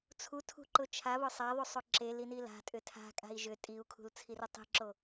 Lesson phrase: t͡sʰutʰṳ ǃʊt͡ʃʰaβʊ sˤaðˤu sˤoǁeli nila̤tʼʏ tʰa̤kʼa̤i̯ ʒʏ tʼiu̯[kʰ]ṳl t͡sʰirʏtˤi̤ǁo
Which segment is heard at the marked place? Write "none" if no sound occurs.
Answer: kʰ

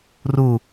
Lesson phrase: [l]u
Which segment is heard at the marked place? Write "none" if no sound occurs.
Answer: r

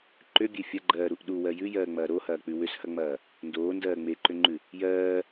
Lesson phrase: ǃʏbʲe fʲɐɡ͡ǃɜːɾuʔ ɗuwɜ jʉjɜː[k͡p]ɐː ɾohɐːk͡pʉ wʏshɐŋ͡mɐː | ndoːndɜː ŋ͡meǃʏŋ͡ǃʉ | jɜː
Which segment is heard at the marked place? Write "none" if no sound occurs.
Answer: ŋ͡m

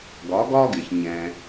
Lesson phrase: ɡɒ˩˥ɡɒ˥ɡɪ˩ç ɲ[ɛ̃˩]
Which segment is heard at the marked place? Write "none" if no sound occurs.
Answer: ɛ̃˩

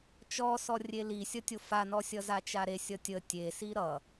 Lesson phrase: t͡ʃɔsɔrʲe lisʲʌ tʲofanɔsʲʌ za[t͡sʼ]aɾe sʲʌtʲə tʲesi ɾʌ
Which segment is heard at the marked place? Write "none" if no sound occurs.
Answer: t͡ʃ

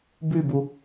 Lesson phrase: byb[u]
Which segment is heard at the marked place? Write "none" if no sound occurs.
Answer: u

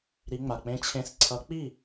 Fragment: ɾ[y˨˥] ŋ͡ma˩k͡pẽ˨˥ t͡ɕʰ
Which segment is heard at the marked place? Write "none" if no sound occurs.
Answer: i˨˥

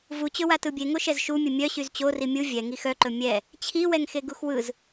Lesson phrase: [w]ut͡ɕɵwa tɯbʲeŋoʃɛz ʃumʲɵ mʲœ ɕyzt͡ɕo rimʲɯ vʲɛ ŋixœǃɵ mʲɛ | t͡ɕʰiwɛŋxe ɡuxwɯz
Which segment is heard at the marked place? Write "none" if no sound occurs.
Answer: v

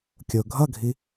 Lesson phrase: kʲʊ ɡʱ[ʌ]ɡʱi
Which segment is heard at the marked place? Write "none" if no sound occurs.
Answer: ʌ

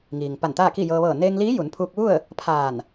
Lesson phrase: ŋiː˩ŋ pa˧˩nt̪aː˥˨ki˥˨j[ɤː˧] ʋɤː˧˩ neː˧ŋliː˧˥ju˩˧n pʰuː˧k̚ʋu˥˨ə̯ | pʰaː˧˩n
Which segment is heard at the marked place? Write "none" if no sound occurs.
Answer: ɤː˧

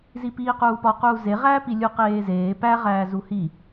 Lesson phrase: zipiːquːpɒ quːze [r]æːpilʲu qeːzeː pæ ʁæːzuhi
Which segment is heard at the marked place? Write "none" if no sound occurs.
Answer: ʁ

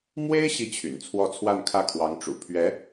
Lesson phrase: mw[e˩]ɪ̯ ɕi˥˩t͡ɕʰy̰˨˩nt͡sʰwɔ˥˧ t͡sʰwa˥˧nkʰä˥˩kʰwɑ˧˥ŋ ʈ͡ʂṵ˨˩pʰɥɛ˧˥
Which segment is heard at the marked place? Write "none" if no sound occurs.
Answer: e˥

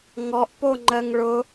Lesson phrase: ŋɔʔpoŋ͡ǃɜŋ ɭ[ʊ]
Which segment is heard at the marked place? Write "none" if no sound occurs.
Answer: ʊ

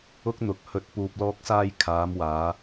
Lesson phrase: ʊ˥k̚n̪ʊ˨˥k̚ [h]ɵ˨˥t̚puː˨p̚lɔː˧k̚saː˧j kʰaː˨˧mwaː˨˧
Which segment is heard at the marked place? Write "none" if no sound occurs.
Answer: h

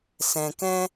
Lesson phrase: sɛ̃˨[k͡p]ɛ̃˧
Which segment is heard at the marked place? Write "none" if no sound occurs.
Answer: k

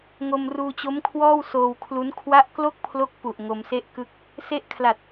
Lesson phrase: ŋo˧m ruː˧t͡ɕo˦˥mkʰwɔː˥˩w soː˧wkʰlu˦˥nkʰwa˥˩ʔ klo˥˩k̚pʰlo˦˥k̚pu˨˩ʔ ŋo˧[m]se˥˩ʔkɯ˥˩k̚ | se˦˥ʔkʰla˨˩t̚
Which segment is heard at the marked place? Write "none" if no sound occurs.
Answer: m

